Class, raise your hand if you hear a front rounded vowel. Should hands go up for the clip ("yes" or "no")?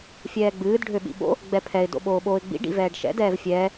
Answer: yes